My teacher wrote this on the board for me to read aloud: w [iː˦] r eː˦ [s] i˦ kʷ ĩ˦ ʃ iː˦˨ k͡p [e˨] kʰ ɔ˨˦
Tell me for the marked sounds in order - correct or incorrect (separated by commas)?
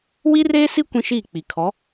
incorrect, correct, incorrect